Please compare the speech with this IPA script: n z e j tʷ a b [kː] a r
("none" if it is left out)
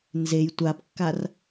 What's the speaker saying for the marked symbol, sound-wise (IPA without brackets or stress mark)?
kː